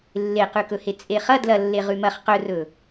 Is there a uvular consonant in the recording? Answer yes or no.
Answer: yes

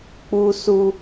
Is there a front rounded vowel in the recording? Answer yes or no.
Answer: no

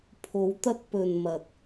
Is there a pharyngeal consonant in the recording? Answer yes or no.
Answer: no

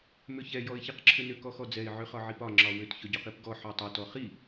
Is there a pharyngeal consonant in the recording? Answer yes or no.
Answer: yes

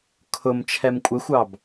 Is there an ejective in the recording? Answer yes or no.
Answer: yes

